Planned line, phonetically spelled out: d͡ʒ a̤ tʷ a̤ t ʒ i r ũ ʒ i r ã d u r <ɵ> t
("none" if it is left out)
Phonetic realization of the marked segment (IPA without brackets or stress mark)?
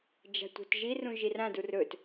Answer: ɵ